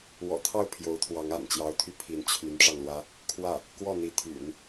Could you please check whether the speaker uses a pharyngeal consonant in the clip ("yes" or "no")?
no